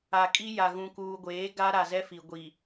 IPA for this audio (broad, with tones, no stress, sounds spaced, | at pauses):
a˨ kʼ i˦ j a˨ ɣ ũ˨ k uː˨ ɡʷ eː˨˦ ɡ a˦ ɾ a˨ z ɛ˦ f i˨ ɡʷ i˨